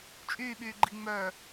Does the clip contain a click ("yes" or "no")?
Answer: yes